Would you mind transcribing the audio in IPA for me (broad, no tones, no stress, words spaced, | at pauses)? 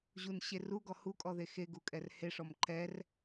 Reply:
ʑunɕe ruɡɔ hukʼɔðe xeɡukʼɛr heʂɔm ǃɛr